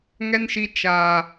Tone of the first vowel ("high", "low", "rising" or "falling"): high